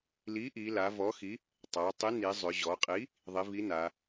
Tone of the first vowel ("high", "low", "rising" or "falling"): rising